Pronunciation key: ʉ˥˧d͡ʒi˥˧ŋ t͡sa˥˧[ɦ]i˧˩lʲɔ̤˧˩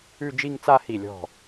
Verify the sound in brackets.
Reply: incorrect: h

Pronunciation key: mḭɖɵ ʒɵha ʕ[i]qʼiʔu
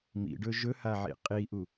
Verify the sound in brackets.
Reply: incorrect: ḭ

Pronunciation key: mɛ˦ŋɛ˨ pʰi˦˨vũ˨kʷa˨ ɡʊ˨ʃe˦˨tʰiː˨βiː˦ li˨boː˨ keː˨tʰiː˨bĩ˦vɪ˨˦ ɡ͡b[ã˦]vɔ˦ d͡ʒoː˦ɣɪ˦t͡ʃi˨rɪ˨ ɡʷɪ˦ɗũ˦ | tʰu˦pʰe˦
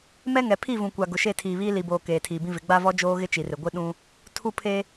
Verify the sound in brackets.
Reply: incorrect: a˦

